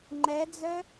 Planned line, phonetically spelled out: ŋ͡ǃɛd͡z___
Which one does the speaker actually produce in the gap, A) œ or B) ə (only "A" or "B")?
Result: A